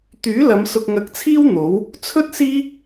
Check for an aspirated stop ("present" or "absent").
present